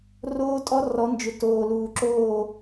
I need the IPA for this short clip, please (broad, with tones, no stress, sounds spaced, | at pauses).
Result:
r oː˦ tʼ ɔ˦ r ɔ˨˦ n d͡ʒ ʏ˨ t oː˨ l uː˨ ǁ oː˦˨